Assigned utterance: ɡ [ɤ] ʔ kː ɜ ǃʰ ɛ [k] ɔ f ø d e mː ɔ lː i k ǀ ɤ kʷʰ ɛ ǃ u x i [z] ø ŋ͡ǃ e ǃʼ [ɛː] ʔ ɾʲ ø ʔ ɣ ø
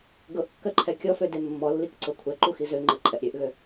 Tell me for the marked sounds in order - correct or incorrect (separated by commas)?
correct, incorrect, correct, incorrect